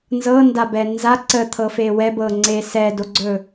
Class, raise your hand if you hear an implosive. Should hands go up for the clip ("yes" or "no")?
no